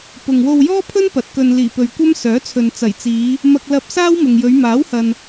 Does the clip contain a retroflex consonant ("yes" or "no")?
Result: no